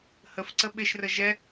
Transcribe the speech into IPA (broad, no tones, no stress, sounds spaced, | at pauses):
h ə f ǀ ə ɓ ɪ ʃ r ə ʒ ɛ